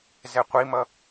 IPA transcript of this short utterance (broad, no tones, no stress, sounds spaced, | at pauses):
z ɛ qʷ i m ʌ